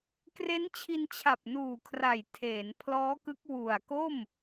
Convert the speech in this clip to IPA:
k r e˦˥ n t͡ɕʰ i˧ n t͡ɕʰ a˨˩ p̚ n uː˨˩ kʰ r a˨˩ j tʰ eː˩˦ n pʰ l ɔː˦˥ k ɯ˦˥ k̚ w u˨˩ a̯ k o˥˩ m

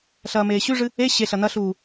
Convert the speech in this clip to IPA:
ɬ ɐː m eː ɕ ʉ ʐ ɨ | e ɕ e ɬ ɐ n ɐ ɬ uː

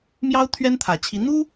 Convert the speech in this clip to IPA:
m j ɑ˥ ʊ̯ t̪ʰ ɥ ɛ˥ n t̪ʰ ä˨˩ t͡ɕʰ i˧˥ n̪ u˥

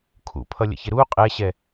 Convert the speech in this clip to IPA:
kʰ ṵ pʰ ʌ lʲ ə̰ ç ɪ ɾ u qʼ ɛ ɕ ɛ

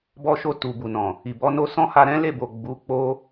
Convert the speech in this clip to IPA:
b ɔ˧ ʃ o˧ t u˨ b u˨ n ɔ̃˨ | i˨ b ɔ˧ n o˦ s ɔ̃˦ h a˧ ɾ ɛ̃˦ l e˦˨ b o˨ ɡ͡b u˨˦ k͡p o˦

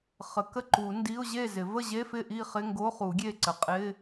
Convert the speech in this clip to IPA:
χ ə˨˩˦ k ə˥˨ ǃ u˨˩˦ n d i˧˥˧ ʊ̯ ʑ e˥˨ z ɪ˨˩˦ v ə˥˨ ʑ e˧˥˧ f ɪ˥˨ ʔ i˥˨ χ ɪ˧˥˧ ŋ ɡ o˧˥˧ χ u˨˩˦ ɡʲ e˥˨ ǀ ə˨˩˦ qʼ ɪ˧˥˧

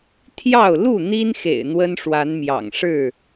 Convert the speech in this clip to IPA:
t̪ʰ j ɑ˥˨ ʊ̯ l u˥˨ n̪ i˦ n x ḛ˨˩ ɪ̯ n̪ w ə˦ n ʂ w a˨˦ n m j ɑ̰˨˩ ŋ ʂ ɻ̩˥˨

